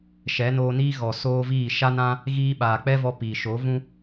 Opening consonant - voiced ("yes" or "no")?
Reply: no